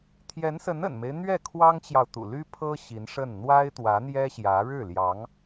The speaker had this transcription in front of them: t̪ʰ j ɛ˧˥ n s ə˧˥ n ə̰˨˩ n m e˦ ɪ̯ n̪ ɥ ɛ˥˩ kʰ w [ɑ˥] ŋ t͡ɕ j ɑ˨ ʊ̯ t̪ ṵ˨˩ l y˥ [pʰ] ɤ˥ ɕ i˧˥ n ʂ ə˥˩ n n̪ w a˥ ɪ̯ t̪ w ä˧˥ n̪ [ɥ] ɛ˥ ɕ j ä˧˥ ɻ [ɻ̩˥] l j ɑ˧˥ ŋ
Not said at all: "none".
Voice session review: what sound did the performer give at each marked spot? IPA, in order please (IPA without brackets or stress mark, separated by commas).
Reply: ɑ˥, pʰ, j, ɻ̩˥˩